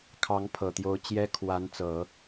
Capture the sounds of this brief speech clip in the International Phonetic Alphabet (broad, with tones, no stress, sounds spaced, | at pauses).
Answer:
kʰ ɑ˧˥ ŋ pʰ ɤ˨˩ t̪ j o˧˥ ʊ̯ t͡ɕ j ɛ˥ kʰ w a˧˥ n t͡s ɤ˨˩˦